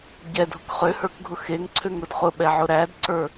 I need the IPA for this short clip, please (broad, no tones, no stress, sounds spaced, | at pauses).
ɟ ɛ dʱ ʊ k χ ø h ə˞ k ɡʱ ʊ x e ŋ ǀʰ ø ŋ ɾ ʊ d χ ʊ ɓ ɛ ʕ ʊ ɾ æ d ǀ ə˞